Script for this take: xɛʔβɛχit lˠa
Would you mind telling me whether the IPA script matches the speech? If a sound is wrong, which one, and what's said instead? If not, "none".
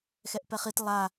β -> p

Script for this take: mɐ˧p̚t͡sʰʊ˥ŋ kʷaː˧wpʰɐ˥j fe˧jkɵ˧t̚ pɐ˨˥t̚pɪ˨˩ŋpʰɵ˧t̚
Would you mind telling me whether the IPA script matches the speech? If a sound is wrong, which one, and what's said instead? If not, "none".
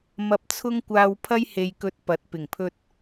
f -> h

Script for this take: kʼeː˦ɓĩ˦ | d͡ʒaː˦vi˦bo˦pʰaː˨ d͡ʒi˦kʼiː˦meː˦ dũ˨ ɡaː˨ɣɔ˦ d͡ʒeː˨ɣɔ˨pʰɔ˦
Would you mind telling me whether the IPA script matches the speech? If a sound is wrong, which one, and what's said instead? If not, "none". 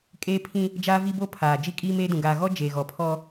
ɓ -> pʰ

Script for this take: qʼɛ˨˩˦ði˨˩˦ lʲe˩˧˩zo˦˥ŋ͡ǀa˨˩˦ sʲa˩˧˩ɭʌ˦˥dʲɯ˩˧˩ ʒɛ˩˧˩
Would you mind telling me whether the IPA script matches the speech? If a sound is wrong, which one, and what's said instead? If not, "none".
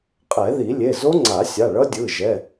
none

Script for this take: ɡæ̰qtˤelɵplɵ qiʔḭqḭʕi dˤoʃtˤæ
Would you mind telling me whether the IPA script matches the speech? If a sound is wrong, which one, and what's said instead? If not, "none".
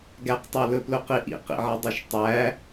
æ̰ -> æ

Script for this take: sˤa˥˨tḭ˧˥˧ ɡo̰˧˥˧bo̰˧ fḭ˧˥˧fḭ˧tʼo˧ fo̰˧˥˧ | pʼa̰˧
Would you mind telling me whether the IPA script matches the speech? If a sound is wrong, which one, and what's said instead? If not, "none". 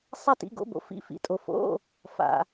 pʼ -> f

